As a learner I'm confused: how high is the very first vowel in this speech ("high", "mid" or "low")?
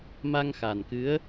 low